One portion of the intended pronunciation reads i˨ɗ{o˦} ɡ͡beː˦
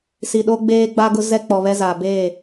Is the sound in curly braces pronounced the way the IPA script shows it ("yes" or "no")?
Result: yes